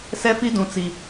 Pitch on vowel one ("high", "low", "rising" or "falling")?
high